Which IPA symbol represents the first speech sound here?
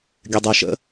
ɡʲ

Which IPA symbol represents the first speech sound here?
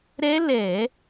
ɾ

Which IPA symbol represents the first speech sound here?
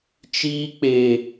t͡ʃ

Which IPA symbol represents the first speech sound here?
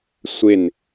sʷ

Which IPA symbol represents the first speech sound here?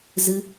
z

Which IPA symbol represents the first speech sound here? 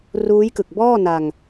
r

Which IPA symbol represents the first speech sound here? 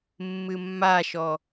mː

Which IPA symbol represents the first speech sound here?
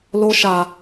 l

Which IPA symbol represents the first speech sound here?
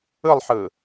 ɯ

